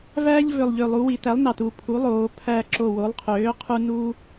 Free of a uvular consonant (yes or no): no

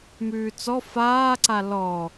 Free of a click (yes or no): no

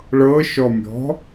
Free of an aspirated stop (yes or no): yes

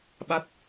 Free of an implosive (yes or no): no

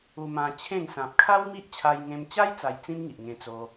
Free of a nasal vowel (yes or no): no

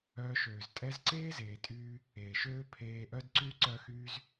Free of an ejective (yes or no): no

